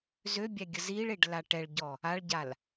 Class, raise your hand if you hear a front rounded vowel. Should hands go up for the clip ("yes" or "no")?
yes